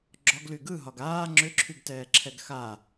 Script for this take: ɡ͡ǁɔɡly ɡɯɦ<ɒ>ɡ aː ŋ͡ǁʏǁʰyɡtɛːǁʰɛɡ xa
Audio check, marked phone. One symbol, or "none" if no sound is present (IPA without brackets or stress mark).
ɒ